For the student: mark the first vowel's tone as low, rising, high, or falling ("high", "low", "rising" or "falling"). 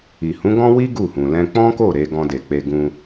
low